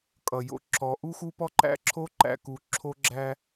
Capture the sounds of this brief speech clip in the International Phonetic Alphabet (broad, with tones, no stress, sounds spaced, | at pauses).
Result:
kʼ ʌ˨ j o̰˦ ǁ ɔ˨˦ ʔ u˦ x u˦ p ɔ˦ ǃ æ̰˦ ǁʰ o˦ ǃ æ̰˦˨ k u˨˦ ǁʰ o˦ ɡ͡ǁ æ˦